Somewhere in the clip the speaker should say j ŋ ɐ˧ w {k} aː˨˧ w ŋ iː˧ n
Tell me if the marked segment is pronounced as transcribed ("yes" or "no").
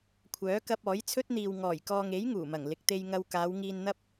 yes